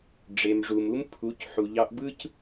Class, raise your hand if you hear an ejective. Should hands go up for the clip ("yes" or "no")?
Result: no